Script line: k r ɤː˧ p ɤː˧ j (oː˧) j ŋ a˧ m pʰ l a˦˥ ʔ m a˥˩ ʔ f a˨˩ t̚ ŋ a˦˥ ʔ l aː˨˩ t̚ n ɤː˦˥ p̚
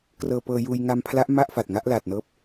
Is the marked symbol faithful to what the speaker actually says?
no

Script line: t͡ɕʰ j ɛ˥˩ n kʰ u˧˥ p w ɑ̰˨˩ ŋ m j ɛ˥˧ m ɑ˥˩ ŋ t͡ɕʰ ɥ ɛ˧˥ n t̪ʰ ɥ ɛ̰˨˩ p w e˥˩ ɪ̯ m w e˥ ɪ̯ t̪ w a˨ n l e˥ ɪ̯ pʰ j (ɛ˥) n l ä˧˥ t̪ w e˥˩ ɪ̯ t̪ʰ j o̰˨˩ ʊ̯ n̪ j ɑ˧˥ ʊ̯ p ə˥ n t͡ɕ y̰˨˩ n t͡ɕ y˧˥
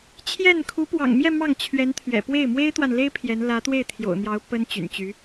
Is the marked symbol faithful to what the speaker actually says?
no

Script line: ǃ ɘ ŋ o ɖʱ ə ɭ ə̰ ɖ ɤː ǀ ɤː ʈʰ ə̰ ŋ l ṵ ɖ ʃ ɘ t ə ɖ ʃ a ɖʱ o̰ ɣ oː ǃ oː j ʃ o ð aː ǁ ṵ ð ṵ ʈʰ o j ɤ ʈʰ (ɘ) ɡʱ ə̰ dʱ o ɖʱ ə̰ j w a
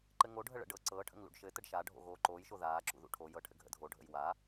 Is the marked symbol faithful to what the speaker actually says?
yes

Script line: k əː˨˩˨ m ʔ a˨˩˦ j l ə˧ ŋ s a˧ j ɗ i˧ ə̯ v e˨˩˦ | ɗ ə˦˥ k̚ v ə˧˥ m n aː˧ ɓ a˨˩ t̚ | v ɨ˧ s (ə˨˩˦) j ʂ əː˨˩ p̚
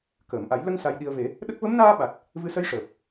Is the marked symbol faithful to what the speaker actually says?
no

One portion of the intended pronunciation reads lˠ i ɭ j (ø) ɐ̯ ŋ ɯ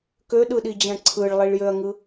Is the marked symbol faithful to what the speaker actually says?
yes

